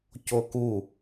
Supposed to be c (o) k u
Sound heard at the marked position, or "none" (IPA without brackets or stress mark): o